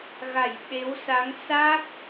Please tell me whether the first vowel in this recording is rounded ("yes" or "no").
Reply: no